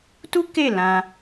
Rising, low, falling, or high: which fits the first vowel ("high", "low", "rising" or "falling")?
high